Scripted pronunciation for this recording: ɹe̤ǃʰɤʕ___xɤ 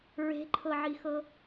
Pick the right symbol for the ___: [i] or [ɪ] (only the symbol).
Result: i